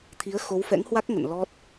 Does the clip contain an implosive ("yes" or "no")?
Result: no